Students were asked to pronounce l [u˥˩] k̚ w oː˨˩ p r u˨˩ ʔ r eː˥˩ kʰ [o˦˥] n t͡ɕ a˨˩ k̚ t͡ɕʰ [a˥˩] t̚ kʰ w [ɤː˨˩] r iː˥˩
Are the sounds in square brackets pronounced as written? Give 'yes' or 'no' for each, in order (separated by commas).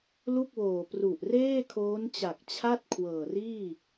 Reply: yes, no, yes, yes